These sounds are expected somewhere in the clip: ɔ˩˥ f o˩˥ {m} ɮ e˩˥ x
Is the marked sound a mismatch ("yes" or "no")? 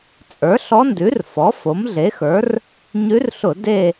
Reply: no